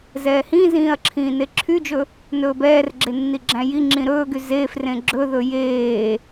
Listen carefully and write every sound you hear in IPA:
z ɛː h ĩ z ĩː ɐ̯ ǁʰ ĩː n e ǁʰ y d͡ʒ ɵ | n ɵː b ɛː r ɡ͡ǁ e nː i ɡ͡ǁ æ̃ j i ŋ͡ǁ ĩ ɾ ɵː ɡ y z eː f r ẽ ɡ͡ǁ ɵ ð ɵ j eː

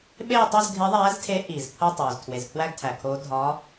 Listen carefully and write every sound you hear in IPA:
ɓ eː˥˧ tˤ o˥˧ z ɡʱ e˧˥ ðˤ æː˧˥ z tʰ e˧˥ ʔ iː˩ z pʰ o˥˧ tˤ oː˩ z tʰ w e˩ z pʰ w æ˥˧ ɡ tʰ æ˩ kʰ oː˧˥ dʱ ɒ˧˥

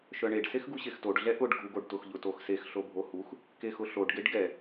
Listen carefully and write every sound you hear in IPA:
ʃ œ ɳ e ɖ s e x ɡ u ɕ e x t o ɖ ɮ ɛ ʔ ʊ ɖ ɡʱ u ɡ o ɖ t ʊ x ʎ ʊ t o x s e x ɬ o bʱ o h u x | k e x ʊ ɬ o ɖ ɡ e ɖ ɡ ɛ

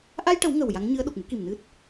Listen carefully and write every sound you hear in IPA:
ʔ a˧ j ʈ ə˨˩˦ w ŋ ə˨˩ w j a˧˥ ŋ ɲ ɨ˧˥ ə̯ ɗ o˨˩ k̚ m u˧˥ k i˨˩ m n ɨ˦˥ t̚

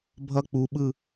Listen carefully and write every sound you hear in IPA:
bʱ ʌ k͡p u ɓ ɯ

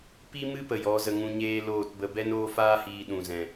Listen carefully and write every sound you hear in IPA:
p i˧ m ɨ˧ p ə˨ j ɔ˨˦ z ə˧ ŋ ũ˧ ɲ eː˦ l oː˦˨ t b ə˧ b ɛ˦ n oː˦ f aː˦ h iː˧ ɗ ũ˨ z ɛ̃˨

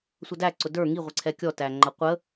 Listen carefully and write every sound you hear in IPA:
sʷ ʌ d æ ǀ ʊ d ə˞ ŋ i ʁʷ ɪ ǀʰ ɛ kʲ ɔ t æ ŋ͡ǃ ʌ qʷ ə

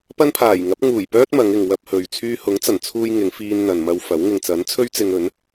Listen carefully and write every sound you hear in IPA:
p ɐ˥ n pʰ aː˨˩ j ŋ ɐ˨˥ p̚ ŋ uː˨˩ j p œː˥ t̚ m ɐ˨˧ ŋ ɪ˨ ŋ w ɐ˧ p̚ h ɵ˨ ɥ t͡sʰ yː˧ h ʊ˨˥ ŋ t͡s ɐ˨˩ n t͡sʰ uː˧ j ŋ ɪ˨˧ ŋ f iː˧ n n̪ ɐ˨ n m ɐ˧ w f ɐ˨˥ w ŋ ɪ˨ ŋ t͡s ɐ˨˥ n t͡sʰ ɵ˥ ɥ t͡s ɪ˧ ŋ ɵ˨˥ n

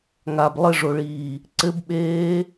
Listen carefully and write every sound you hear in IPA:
ŋ a b lˠ ɘ ʐ o ɭ iː | ǀ ɘ b ɓ eː

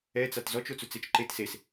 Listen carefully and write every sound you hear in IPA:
ɛ t͡s a t z ɔ t͡ʃ o t͡s u t͡s e t͡ʃ ǃ e t s e s

